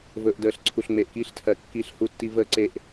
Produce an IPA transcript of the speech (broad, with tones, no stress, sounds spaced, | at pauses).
v ɵ˨ ʔ d əː˨ ɬ ǀʰ u˨ ɬ ŋ͡m e˨ ʔ k iː˦ ɬ tʰ ɜ˨ kː i˦ ɬ h u˦ tː i˦ v əː˦ ǀ e˨ ʔ